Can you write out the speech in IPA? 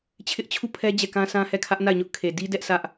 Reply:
t͡ɕʰ ɪ˦ ʔ t͡ɕʰ u˦˨ pʰ ɛ˦ d͡ʑ ɛ˦˨ k ã˦ sʰ ã˦ h ɛ˦˨ kʰ ä˦ ʔ n a˦˨ ɪ̯ ɲ ʊ˦ ʔ kʰ e˨ d i˦ d ɛ˦ ʔ s ä˦ ʔ

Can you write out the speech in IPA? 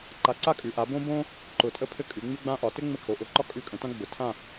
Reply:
ǃ a˧˩ ǀ a˥ kʼ ʉ˩˥ ʔ a˩˥ b õ˥ b õ˥ | ǃ ʊ˧˩ tʼ ə˥ pʰ ɘ˥ kʼ ʉ˩˥ ŋ͡m ʉ˥ ɡ͡b ã˥ ʔ ɒ˩˥ t ɘ˥ ŋ͡m ɘ˥˨ kʰ o˩˥ ʔ ʊ˩˥ ǃ ɒ˥ kʼ ʉ˥˨ kʼ ə̃˩˥ t ã˥ ɡ͡b ʊ˩˥ tʰ ã˥˨

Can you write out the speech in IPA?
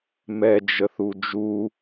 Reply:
m ɛ d͡ʒ ə θ u d͡ʒ u

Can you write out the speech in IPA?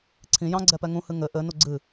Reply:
ǀʰ ĩ j ɑ̃ ɡ͡ǀ ɛ p ɛ ŋ ũ h ɨ ŋ ɘ ʔ ɘ n u ɡ͡ǀ ɨ

